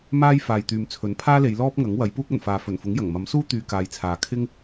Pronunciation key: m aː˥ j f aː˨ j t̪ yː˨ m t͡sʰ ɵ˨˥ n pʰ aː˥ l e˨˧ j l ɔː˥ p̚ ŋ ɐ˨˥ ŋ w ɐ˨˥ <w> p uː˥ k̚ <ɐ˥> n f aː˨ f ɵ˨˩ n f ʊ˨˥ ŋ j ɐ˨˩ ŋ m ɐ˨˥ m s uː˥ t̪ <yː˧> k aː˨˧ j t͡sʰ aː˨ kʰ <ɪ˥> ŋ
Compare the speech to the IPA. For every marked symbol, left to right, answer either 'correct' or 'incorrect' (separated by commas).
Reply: incorrect, incorrect, correct, correct